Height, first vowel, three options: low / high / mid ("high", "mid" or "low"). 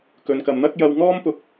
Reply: mid